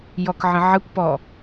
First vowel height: mid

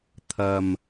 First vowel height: low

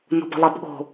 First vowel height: mid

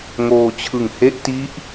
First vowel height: mid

